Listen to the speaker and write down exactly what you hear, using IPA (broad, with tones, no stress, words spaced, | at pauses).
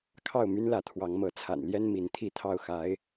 kʰɑ˥˨ʊ̯my˦nlä˨˦ t̪ʰwɑ˨˦ŋmɤ˨˦ t͡sʰa̰˨˩nljɛ˦n mi˨˦nt̪ʰi˥˨t̪ʰɑ˥˨ʊ̯xa˨˦ɪ̯